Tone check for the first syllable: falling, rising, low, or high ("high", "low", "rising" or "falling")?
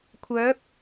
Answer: rising